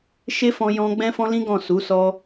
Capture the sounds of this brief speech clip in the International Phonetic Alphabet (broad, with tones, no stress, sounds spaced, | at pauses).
ʃ e˦ f ɔ̃˧ j ɔ̃˧ ɡ͡b ɛ̃˦ f ɔ̃˦ l ĩ˦ ɡ ɔ̃˦˨ s u˨˦ s ɔ˧